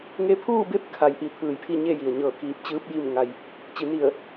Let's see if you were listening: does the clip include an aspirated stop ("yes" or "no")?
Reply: yes